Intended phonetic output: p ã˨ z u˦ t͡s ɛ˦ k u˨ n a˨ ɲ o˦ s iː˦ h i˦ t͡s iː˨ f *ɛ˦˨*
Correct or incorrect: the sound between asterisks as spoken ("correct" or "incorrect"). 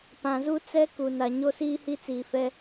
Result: incorrect